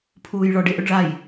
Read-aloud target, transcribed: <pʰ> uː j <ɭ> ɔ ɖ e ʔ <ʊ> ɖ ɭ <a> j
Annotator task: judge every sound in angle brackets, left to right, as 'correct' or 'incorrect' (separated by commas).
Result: correct, correct, correct, correct